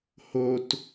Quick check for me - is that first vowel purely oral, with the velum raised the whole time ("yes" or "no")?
yes